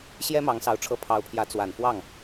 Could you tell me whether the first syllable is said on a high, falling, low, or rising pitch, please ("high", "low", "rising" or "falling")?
high